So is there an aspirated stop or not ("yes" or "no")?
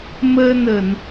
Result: no